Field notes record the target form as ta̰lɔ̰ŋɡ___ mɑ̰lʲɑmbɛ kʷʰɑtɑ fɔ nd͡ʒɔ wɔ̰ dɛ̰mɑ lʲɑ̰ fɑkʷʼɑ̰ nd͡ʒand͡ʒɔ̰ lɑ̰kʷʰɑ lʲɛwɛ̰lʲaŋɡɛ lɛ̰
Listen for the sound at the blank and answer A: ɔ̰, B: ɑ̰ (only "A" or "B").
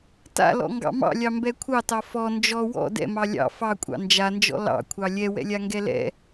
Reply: B